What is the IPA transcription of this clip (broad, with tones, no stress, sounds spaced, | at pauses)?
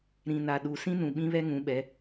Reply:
ɾ ĩ˨ n a˨ ɗ u˨ s ĩ˦ n ũ˨ ɓ ĩ˦ β ɛ˦ ŋ ũ˨˦ ɓ ɛ˨˦